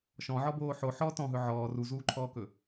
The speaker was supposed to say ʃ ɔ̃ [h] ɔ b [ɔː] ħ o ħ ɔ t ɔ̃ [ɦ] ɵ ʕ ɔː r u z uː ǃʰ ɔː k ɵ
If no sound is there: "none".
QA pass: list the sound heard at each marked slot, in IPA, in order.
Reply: ʕ, oː, ɦ

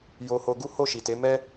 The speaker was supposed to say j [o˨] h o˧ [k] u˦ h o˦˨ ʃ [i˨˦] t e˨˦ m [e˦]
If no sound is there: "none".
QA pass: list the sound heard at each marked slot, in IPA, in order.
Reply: o˧, ɡ, i˨, ɛ˦

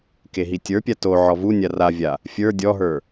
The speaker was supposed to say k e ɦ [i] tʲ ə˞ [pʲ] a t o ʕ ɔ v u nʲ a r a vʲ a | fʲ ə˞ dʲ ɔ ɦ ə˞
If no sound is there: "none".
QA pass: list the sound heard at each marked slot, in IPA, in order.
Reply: i, pʲ

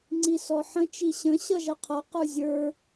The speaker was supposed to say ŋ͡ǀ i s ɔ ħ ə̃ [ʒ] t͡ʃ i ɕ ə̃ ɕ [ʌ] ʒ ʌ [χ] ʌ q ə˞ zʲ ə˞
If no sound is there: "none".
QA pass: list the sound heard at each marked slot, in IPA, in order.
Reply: none, ʌ, qʰ

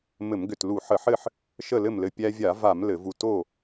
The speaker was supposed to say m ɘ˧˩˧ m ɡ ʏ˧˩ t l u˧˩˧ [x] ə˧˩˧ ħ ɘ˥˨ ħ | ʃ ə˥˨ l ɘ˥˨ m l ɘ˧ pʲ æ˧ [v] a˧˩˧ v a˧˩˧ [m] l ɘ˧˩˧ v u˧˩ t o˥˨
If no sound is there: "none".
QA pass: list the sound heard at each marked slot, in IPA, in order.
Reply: ħ, vʲ, m

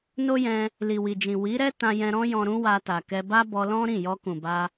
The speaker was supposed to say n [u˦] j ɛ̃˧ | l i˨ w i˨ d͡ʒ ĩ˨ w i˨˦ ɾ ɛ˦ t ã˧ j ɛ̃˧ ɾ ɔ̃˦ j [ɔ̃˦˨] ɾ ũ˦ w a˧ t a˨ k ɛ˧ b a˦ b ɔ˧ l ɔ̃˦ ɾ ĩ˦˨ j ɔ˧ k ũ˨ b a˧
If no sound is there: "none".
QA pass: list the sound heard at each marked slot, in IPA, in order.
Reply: o˦, ɔ̃˧

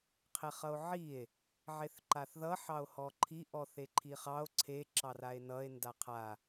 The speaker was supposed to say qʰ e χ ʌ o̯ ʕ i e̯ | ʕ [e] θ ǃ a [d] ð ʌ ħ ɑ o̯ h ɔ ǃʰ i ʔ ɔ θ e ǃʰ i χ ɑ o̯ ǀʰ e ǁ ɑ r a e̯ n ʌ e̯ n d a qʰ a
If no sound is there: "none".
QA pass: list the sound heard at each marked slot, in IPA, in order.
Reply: e, θ

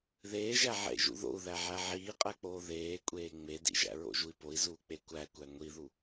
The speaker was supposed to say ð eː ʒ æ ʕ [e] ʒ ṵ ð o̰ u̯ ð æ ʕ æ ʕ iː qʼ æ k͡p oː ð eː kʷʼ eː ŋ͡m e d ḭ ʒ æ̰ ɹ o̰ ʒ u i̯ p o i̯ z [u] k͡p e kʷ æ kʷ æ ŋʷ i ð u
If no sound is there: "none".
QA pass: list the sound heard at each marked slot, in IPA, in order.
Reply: ḛ, uː

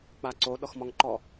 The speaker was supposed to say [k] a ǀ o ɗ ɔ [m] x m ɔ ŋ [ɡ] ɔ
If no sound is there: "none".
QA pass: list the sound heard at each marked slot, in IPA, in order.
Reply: k͡p, none, ǃ

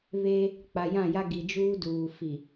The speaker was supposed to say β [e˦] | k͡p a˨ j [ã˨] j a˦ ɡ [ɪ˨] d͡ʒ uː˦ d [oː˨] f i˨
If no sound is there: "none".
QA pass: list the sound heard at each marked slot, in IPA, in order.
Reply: e˦, ã˦˨, i˨, uː˨

